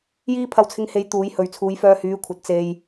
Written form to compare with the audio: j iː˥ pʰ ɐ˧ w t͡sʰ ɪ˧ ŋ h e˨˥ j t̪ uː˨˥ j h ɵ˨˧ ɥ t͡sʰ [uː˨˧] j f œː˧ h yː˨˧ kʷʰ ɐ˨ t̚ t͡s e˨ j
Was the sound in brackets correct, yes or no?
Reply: yes